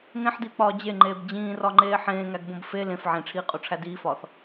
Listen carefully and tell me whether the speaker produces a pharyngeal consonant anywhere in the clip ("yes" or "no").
yes